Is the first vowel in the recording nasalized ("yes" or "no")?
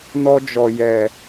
no